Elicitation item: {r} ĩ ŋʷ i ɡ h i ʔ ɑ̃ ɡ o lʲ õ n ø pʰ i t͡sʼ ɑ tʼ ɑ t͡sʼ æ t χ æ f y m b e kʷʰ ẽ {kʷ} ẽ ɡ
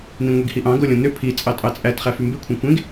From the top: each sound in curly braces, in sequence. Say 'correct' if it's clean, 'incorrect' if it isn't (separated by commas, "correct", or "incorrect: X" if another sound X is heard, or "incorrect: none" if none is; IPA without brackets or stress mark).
incorrect: n, correct